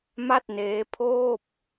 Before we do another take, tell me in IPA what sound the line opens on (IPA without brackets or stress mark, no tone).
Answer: m